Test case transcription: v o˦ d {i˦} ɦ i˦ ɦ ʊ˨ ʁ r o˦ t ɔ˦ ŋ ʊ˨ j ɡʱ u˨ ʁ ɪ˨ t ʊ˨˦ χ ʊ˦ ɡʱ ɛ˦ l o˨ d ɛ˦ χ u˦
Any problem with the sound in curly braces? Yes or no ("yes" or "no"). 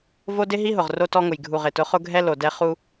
yes